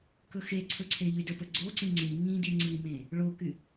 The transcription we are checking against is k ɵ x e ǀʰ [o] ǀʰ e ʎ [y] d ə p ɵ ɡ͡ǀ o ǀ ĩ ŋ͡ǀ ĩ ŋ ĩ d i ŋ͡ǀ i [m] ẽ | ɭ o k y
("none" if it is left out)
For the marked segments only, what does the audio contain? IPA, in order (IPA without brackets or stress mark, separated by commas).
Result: ɵ, y, m